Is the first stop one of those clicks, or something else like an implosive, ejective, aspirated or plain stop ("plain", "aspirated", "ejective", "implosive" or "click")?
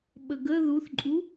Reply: implosive